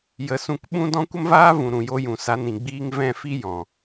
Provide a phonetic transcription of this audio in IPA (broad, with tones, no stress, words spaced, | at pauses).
jə˨˦sũ˧k ɓũ˦dɔ̃˦ kʷə˦mvaː˦ vũ˨ ɾũ˨jo˧jũ˨ sa˧nĩ˨ɡ͡biː˦ŋ vɛ̃˦˨fi˦ jɔ̃˨